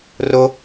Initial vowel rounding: rounded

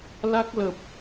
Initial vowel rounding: unrounded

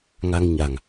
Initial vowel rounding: unrounded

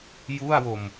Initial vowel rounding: rounded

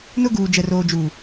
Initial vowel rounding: rounded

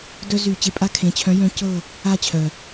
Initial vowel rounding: rounded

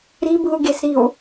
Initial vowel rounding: unrounded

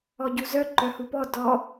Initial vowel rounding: rounded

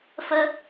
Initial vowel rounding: unrounded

